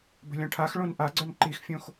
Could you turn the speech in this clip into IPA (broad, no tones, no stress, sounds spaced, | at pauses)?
b ə̤ lʲ ɔ̃ ʈʰ a x ɭ õ n ʔ a ɡ͡ǀ œ n ǃ i x fʲ õ x